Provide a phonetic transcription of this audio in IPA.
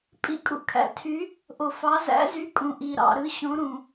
pʼḭ˨˦kʼṵ˨kʰæ̰˨tʰy˨˦ | ʔo˨fɑ˨˦ zæ̰˨˦zy˨˦ kʼũ˨ ʔi˨ɾɑ̰˨ɾɯ˨˦ ɕõ˨˦ɾũ˨

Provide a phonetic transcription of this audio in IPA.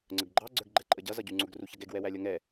ŋ͡ǀəɡɡ͡ǃɑ ɡ͡ǀə˞ɡɡ͡ǃɛǃʼəɟʌ zʌɟuŋ͡ǀʊɡ ruçʌɡɛɡ wɛwælʲʌŋɛ

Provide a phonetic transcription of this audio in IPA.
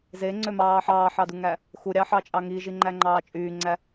zeŋ͡ǀømɑː ħɑːħɑduŋæ | xuɾʲɑħɑt͡ʃʼɑ ŋiʒiŋ͡ǃæŋ͡ǃɑː t͡ʃʼyːŋ͡ǀæ

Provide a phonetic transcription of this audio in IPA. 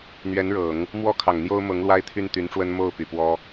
n̪ɥɛ˧˥nɻɤ˨˩˦ŋ | mwɔ˥kʰɑ˨˩ŋn̪jo˥ʊ̯ mɤ˧˥ŋ lwa˥ɪ̯t̪ʰy˥˩nt̪y˧˥nʈ͡ʂwə˥n mo˥˩ʊ̯ py˨˩pwɔ˥

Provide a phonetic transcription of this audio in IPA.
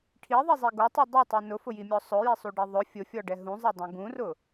ʈʰiðˤizˤi ɡotˤi dˤotˤi nʊfʊjimʲɔ sˤʊjisˤuɖi ðˤʊ fʲʊfʲɔɖɛ ɦũzˤɛdˤũ ɡũrʊ

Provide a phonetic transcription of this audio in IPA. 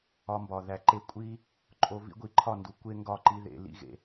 ɒ˧mbɒ˨ ðæ˨ǃe˧ kʷʼi˦ | ǃʼo˧ vḭ˦ɡʷi˨ ǃʰɒ˦˨ndu˨ kʷe˦ ŋɡɒ˦˨ ǃi˦ðḛ˨lḭ˦ ɣḛ˨

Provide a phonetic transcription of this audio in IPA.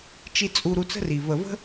t͡ʃi˧ t͡sʼu˧ɾu˧ t͡sə̤˦ri˨ və˨və̤˦

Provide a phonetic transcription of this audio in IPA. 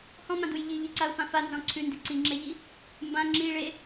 hɔ̃mãduj ʎiʎiǀaʊ̯fã fanzɔ̃ ǀʰʉndi ǀiŋ͡ǁeʎi | mbã ŋ͡ǁi ɭe

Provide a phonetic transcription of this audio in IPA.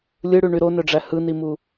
lʲɯɽyɳy ɾonøɖ͡ʐæ hɯnimu

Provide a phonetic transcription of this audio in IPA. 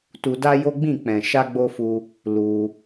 tu˧da˦jo˦ɡ͡bĩ˦˨ k͡pɛ̃˨ ʃa˧ɡ͡bo˧fu˧ | lu˧

